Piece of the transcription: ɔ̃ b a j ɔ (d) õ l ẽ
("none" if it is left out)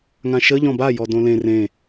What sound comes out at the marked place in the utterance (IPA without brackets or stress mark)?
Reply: d